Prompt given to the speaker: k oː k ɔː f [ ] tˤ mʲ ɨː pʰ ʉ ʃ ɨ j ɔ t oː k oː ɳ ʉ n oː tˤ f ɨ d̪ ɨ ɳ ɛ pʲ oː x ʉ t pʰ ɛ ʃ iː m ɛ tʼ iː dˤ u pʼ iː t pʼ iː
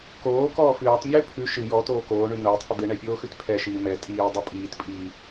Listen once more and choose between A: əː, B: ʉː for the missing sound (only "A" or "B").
B